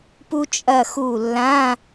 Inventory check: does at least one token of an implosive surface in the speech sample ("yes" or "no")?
no